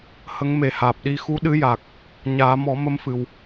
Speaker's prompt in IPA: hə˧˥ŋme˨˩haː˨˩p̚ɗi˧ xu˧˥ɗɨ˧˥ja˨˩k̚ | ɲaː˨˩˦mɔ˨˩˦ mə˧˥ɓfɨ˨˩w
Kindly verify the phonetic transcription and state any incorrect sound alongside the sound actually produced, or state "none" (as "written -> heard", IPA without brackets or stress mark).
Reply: ɓ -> m